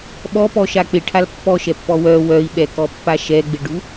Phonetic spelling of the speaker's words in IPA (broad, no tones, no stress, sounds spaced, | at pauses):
ɓ ɔ p ɔ ʃ a k͡p ɪ ʈʰ a l pː ɔ ʃ ɛ pː ɔ w œ w œ i̯ ɓ ɛ k ɔ pː a ʃ ɛ ɡ͡b ɪ ɖ u